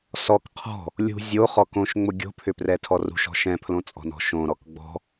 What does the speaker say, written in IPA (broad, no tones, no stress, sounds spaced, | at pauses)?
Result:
s ɔ k qʰ ɔ̤ | lʲ ṳ zʲ o χ ɔ k õ ʃ ŋ͡m ʊ ɡʲ o̤ pʰ ʏ p r ɛ tʰ ɔ r ṳ ʃ ɔ̤ ʃ ɛ̃ pʰ l õ t͡sʼ ɔ̤ n ɔ̤ ʃ õ ɾ ɔ k ɡ͡b ɔ̤